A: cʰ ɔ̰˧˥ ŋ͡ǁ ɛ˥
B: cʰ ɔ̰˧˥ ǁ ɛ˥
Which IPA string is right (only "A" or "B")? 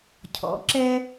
B